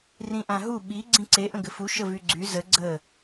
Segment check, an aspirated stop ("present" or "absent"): absent